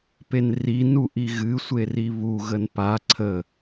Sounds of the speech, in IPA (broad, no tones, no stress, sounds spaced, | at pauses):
p e n r i n u ʔ i ɣ ɨ sʷ e r i β u ɣ ə n p a ǀʰ ə